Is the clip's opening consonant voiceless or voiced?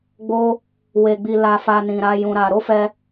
voiced